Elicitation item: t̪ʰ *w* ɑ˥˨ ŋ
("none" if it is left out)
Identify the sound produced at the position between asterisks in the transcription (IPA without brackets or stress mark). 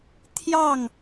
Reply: j